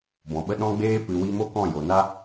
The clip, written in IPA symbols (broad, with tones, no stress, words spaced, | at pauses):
bɔ̃˨ɓə˦ ɗɔ̃˦ɡ͡beː˦ pɨ˨wi˧mo˦ kɔ̃˦˨jo˨na˦